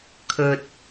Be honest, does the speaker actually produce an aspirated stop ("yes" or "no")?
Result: yes